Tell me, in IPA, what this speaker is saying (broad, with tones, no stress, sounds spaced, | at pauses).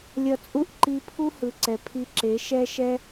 lʲ ʌ˧ t͡sʼ u˦ ʔ ǃ i˧ pʰ u˦ h ɯ˨ ǀ ɛ˨ pʰ i˧ ǁ e˨˦ ʃ ɛ˦ ʃ ɛ˦